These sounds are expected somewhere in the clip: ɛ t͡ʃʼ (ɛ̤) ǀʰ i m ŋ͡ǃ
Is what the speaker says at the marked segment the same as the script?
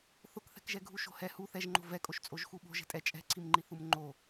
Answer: yes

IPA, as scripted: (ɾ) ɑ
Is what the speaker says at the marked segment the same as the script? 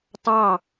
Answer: no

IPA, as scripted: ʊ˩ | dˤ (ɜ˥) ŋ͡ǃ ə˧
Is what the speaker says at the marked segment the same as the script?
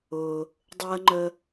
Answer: yes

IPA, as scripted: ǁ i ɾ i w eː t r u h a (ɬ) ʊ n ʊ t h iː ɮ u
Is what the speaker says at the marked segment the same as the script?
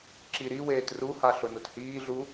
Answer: yes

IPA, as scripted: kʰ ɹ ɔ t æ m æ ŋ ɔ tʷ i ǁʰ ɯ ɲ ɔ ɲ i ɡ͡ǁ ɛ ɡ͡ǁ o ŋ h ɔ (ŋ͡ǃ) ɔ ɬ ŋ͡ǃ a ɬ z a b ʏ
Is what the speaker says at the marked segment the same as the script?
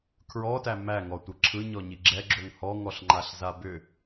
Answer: no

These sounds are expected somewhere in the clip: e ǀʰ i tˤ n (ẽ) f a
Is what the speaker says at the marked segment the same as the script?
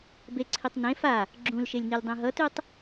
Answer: yes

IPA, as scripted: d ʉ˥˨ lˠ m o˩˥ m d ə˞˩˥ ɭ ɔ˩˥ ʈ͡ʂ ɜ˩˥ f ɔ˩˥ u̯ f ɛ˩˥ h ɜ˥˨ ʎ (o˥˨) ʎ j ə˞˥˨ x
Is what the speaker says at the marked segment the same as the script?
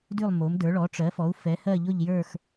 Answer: yes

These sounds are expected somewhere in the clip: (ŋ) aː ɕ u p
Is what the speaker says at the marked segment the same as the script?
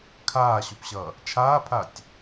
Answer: no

